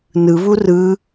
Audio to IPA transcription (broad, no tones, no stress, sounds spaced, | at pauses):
n ɯ β u r ɯ